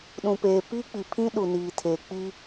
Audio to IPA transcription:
ɗ ũ˨ p eː˨ p iː˦ k͡p i˨ pʰ ĩ˦ ɗ u˨ n iː˨ tʰ e˨ k͡p iː˦

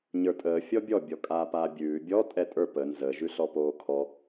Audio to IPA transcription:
ɲ ə˞ tʼ əː fʲ ɔ bʲ ɔ bʲ ɔ kʼ aː p aː bʲ ʉː bʲ ɔ tʼ ɛ tʼ ə˞ p ə n z ə ʒ ʉ ɬ ɔ p oː kʰ ɔ

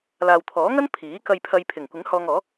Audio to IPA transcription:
l aː˨ w t̪ʰ ɔː˨˥ ŋ ɐ˥ n pʰ iː˨˥ k ɐ˨ j pʰ ɐ˨ j pʰ ɪ˨˩ ŋ kʷ ɪ˨˥ ŋ h ɔː˧ ŋ ɔː˨˥

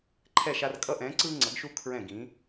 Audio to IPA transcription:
ǃʰ ɛ˦˨ ʃ a˦ r kʼ ʌ˦ ʔ ɛ̃ː˨˦ ǀ ɯː˦ ŋ͡ǀ ʌ˨˩˦ ɡ ʃ u˦ kʰ ɹ ɛ̃˦˨ ɡ ĩ˨˦

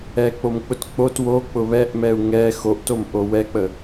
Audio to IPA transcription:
ɛ k͡p o m k͡p ʊ t k͡p o t w o k͡p ʊ β ɛ ʔ m ɛ u̯ ŋ ɛ x o ʔ t o m ʔ o w ɛ k͡p ə

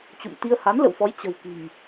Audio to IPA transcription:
t͡ɕ ṵ˧˨ m t̪ i˧ ə̯ h a˨˦ n l ə̰˧˨ w f ɔ˨˦ j t͡ɕ ə̤˨˩ w k i̤˨˩ ŋ

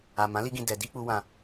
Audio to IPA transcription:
a˨ m ã˨˦ l i˧ ɡ ĩ˨ d ɛ˨ d i˧ k͡p u˧ w ã˧

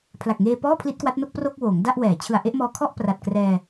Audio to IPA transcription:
pʰ l a˨˩ k̚ ŋ eː˧ p ɔː˥˩ pʰ l i˦˥ t̚ k w a˦˥ t̚ n o˥˩ k̚ p r o˥˩ k̚ w oː˩˦ ŋ d a˥˩ ʔ w ɛː˩˦ t͡ɕʰ ɯ˨˩ a̯ ʔ e˥˩ ʔ m ɔː˧ kʰ ɔ˥˩ ʔ p r a˨˩ t̚ k r ɛː˧

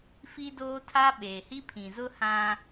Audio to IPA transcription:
f i˦ d oː˦ tʰ a˦ ɓ eː˨ h i˦ pʰ ĩ˨ z ʊ˦ h ã˦

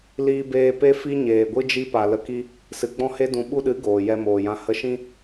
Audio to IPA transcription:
l iː˧ b eː˧ p e˦ f i˦ ɲ eː˨ ɡʷ ɨ˦ d͡ʒ i˦ p a˨ l ə˨ k i˧ | s ɨ˨ ɡ͡b ɔ̃˦ h e˦ d ũ˨ ɓ u˧ ɗ ɨ˨˦ ɡ oː˨ j ɛ˧ m oː˨ j ã˧ h ə˧ ʃ ĩ˦

